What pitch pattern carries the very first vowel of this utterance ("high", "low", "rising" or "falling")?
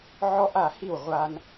high